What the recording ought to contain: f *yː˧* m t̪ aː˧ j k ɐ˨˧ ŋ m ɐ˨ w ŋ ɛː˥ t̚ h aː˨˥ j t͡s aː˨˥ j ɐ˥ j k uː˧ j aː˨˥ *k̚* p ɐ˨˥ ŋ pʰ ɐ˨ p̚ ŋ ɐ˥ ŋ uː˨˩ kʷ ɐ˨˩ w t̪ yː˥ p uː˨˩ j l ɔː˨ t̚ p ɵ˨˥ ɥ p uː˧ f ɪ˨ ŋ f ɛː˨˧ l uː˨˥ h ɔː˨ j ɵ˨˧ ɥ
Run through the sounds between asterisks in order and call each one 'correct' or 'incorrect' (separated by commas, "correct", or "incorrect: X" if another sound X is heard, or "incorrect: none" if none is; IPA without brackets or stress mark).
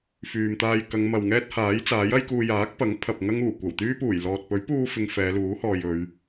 incorrect: yː˨, correct